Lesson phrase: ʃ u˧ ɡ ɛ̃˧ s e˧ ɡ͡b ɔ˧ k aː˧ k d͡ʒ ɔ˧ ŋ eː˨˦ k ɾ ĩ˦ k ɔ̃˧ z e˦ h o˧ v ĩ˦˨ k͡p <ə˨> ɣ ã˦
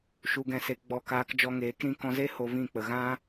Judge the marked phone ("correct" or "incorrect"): correct